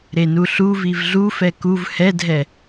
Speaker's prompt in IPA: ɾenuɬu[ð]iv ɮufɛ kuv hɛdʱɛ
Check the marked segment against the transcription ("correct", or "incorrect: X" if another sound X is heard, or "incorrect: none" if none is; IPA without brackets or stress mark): incorrect: v